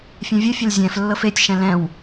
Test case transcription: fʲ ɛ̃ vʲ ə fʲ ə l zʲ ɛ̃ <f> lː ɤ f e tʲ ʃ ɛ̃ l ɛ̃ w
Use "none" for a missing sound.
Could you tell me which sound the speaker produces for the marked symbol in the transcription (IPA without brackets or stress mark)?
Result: f